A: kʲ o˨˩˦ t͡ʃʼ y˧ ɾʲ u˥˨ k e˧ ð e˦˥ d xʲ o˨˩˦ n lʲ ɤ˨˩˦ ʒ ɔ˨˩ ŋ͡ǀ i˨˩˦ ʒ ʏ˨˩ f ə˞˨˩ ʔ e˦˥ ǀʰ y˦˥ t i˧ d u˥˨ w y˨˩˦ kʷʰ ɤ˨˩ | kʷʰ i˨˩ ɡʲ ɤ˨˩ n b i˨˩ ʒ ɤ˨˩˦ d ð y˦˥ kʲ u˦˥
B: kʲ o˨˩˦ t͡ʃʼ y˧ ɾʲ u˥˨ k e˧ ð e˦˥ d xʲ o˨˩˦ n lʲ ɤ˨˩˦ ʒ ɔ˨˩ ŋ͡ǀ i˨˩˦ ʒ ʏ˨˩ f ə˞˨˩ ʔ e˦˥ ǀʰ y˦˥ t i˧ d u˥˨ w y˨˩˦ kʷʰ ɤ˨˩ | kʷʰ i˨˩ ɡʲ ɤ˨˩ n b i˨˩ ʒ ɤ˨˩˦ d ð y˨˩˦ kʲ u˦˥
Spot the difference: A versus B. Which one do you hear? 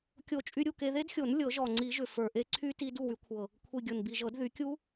B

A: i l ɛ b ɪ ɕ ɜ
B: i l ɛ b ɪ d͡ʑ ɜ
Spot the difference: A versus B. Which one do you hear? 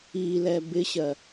A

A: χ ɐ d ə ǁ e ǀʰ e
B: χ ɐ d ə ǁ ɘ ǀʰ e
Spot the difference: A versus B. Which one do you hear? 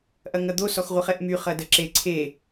A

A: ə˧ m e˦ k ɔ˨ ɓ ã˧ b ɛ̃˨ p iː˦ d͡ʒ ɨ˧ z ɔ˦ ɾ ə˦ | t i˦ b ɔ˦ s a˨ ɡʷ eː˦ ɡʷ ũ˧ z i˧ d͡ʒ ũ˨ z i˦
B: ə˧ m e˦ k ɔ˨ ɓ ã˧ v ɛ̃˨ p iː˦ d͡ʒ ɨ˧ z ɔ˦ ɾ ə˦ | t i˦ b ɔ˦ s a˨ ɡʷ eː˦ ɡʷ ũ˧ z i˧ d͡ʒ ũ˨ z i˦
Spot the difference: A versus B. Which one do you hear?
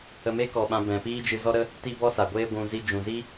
A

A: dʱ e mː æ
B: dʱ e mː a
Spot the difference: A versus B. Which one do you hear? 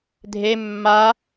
B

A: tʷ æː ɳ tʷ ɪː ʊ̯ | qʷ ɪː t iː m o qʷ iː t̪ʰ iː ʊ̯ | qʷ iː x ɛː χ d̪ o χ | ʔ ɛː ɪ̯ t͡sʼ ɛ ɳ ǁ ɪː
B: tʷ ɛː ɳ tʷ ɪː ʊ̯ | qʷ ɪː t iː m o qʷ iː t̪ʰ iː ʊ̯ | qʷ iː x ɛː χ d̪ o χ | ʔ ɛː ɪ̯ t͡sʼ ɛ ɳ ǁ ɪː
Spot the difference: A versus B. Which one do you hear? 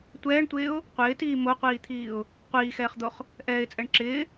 B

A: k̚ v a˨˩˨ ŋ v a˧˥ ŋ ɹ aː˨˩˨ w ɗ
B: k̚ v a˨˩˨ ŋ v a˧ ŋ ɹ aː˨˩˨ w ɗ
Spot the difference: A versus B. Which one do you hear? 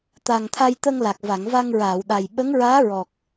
B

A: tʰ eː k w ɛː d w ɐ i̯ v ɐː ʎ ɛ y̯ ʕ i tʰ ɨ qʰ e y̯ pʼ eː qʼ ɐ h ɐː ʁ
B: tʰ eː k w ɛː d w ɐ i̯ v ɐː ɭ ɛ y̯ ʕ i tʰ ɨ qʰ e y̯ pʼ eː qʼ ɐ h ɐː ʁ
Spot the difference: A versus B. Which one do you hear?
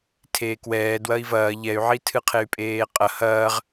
A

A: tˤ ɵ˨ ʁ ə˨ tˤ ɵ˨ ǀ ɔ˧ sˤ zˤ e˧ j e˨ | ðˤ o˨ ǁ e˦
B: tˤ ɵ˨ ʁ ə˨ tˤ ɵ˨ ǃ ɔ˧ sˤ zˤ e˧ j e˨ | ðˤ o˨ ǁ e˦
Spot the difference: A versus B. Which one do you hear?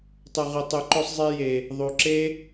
B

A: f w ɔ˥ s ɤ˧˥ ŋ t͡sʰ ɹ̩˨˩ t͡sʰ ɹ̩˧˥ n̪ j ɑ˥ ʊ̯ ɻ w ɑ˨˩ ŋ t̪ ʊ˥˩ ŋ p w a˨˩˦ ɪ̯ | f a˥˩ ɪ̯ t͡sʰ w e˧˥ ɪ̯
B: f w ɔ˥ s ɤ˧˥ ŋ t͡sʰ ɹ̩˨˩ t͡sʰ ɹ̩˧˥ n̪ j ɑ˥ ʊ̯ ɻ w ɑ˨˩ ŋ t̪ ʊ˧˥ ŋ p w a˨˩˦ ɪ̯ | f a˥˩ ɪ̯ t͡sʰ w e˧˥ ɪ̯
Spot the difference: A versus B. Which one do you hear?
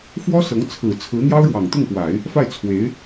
A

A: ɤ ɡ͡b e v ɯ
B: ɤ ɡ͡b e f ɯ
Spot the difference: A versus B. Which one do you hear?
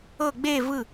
A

